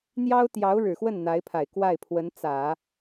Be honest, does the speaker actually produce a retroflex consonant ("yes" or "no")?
yes